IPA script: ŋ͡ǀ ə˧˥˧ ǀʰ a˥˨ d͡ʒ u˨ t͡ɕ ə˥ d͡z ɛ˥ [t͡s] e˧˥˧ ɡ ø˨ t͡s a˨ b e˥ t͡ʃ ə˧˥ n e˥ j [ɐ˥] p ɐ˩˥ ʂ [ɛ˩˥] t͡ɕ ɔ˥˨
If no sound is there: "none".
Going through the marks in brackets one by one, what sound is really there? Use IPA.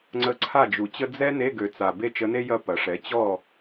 n, ɐ˥˨, ɛ˩˥

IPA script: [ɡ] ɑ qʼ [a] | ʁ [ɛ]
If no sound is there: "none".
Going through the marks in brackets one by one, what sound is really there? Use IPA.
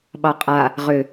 ɓ, a, ʏ

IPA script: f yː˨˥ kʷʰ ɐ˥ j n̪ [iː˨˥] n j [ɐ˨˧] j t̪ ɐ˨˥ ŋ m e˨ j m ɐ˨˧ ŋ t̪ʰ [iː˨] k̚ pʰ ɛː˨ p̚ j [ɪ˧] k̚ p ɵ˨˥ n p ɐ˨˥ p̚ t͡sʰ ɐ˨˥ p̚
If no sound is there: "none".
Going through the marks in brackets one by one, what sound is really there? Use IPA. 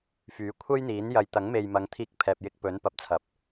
iː˨˥, ɐ˨˧, iː˧, ɪ˧

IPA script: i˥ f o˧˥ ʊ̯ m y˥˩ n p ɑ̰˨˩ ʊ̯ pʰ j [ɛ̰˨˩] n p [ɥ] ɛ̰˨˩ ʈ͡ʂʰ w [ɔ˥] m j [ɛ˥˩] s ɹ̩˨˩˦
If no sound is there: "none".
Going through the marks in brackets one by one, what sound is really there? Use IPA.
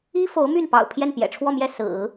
ɛ˥˩, j, ɔ˥˧, ɛ˥˩

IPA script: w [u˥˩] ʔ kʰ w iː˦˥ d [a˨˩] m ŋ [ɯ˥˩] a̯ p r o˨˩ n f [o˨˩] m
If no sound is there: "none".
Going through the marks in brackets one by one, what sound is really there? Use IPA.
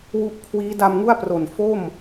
u˦˥, a˧, u˥˩, o˥˩

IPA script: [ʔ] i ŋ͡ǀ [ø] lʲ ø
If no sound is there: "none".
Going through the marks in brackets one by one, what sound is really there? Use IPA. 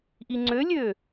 ʔ, ø

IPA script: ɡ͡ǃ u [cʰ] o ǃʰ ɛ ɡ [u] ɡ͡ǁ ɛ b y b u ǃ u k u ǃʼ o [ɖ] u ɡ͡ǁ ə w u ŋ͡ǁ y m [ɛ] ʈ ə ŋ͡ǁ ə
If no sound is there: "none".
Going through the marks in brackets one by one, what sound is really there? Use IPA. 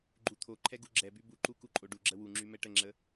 t̪ʰ, u, ɖ, ɛ

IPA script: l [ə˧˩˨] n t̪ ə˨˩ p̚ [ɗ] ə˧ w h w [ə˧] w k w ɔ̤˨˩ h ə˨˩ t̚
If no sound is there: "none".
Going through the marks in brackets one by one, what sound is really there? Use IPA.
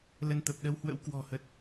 ə˧, ɗ, ə̰˧˥

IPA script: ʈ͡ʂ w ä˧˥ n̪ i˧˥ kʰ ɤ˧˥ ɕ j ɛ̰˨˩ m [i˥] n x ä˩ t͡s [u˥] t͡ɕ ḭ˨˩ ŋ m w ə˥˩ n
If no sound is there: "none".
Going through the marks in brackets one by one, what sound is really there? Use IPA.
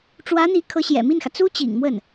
i˥˩, u˥

